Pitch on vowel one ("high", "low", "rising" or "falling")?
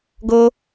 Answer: high